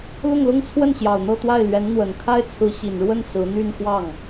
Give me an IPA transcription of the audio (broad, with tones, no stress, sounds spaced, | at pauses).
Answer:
l ʊ˥˩ ŋ l ʊ˥ ŋ t͡sʰ w ə˥˩ n ɕ j ɑ˨˩ ʊ̯ n̪ ɤ˥˧ t̪ w a˥˩ ɪ̯ l ɥ ɛ˧˥ n n̪ w ə˨˩ n kʰ a˥ ɪ̯ t͡sʰ ɹ̩˧˥ ɕ i˨˩ n ɻ w ə˥˩ n s ɹ̩˧˥ n̪ y˥˧ n x w ɑ˥˩ ŋ